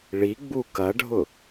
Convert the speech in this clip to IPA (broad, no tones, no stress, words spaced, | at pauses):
ɭiɡ͡bu kɐɖʱʊ